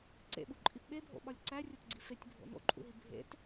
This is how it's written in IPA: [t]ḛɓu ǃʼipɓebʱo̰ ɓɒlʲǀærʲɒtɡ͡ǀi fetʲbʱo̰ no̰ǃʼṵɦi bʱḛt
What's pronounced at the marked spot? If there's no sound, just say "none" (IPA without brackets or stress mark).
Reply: ǀ